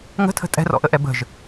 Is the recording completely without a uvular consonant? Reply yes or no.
yes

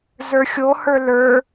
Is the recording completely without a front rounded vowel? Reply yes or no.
yes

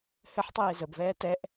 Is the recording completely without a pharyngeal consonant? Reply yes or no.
no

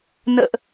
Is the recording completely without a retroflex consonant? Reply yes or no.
yes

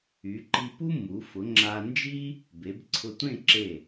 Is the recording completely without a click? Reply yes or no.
no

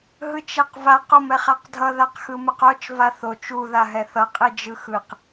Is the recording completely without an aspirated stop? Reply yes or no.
yes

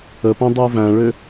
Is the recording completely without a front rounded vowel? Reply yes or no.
no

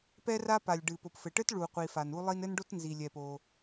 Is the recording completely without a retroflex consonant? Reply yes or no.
no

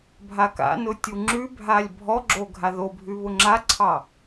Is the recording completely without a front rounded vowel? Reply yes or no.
yes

